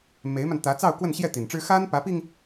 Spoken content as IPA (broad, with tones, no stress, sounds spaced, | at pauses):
m e˧˥ ɪ̯ m a˧ n t̪ ä˧˥ t͡s ɑ˥˧ ʊ̯ k w ə˥˧ n ɕ j ɛ˥˩ t̪ i˨˩ n ʈ͡ʂ ɻ̩˥ x a˥ n p ä˧˥ p i˧ ŋ